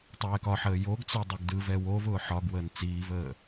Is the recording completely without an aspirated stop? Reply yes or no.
yes